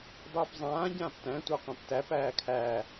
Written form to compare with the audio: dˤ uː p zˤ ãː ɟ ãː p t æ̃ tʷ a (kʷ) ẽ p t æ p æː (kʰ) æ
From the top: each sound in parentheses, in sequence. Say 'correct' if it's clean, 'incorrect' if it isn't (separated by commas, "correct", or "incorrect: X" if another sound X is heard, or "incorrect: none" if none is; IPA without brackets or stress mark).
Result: incorrect: qʷ, correct